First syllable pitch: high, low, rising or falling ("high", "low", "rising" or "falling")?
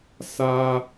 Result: high